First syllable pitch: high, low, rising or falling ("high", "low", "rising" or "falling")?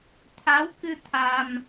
rising